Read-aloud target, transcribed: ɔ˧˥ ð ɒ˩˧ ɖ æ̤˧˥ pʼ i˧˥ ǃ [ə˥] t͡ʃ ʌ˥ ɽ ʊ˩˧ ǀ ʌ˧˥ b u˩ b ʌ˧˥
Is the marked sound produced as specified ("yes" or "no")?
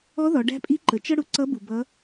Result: no